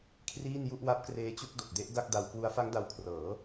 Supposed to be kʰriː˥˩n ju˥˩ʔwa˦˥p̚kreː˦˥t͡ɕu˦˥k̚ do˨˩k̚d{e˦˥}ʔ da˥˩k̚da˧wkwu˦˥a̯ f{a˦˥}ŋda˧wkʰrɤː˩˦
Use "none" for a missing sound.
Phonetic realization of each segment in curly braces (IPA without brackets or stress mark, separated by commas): e˦˥, a˦˥